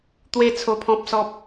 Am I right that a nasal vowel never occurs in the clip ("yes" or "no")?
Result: no